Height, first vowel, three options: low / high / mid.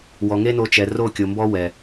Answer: mid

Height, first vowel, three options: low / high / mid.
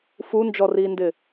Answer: high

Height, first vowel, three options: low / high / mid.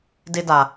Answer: high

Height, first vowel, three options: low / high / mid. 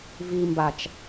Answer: high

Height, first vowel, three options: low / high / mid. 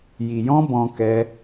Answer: high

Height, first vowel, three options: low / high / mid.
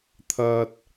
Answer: low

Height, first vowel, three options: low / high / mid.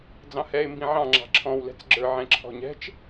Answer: low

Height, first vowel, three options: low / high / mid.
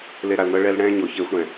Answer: mid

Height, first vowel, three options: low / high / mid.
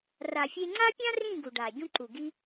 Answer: low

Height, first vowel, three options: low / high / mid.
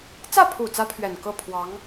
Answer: low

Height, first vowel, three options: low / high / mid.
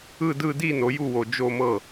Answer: high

